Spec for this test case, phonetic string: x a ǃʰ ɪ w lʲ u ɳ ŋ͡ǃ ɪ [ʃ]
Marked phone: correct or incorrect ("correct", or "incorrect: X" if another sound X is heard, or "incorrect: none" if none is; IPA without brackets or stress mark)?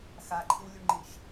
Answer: correct